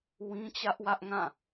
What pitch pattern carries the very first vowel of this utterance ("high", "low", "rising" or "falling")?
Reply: high